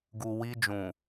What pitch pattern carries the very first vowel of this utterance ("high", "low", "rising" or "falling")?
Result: low